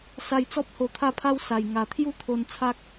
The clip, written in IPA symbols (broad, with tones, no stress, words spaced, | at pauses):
sa˧jt͡sɔ˦p̚ ho˧t̪ʰa˥˧pʰa˦wsa˨˩j ŋa˨˩t̪ʰju˥˧t̪ʰo˧n t͡sʰa˦k̚